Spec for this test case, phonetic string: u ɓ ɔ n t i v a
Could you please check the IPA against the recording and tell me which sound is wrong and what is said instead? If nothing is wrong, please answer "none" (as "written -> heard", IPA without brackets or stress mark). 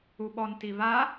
none